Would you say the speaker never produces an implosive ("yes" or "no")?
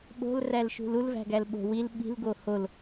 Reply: no